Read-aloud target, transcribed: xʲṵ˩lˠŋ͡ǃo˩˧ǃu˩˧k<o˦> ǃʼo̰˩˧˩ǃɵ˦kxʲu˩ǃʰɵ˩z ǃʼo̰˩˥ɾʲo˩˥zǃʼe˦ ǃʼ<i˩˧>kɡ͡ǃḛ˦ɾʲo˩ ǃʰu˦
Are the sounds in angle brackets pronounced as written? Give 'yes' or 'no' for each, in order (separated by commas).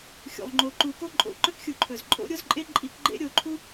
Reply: yes, yes